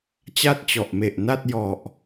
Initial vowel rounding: unrounded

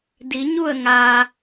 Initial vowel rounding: unrounded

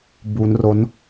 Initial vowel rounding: rounded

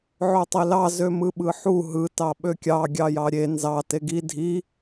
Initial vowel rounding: rounded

